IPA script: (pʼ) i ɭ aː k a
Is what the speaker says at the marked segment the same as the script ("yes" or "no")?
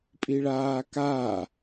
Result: yes